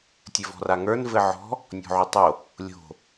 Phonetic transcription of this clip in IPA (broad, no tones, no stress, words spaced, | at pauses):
tʲɘvɔ̤raŋə˞n vɘʕɔ̤ | nʲɔ̤ʕutˤo | lʲo̤